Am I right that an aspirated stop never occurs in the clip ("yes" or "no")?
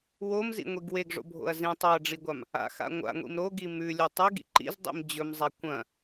yes